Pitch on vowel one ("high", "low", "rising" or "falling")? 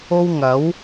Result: high